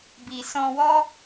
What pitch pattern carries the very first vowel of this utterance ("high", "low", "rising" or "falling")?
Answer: low